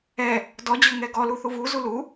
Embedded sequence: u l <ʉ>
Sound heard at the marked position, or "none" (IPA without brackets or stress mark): u